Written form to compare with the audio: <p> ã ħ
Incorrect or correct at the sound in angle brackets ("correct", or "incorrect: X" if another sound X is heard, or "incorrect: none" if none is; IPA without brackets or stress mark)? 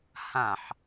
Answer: incorrect: h